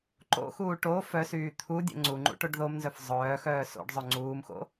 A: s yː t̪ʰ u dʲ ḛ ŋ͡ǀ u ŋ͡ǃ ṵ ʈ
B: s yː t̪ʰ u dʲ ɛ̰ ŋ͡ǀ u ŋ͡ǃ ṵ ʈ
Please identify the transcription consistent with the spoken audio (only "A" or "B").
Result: B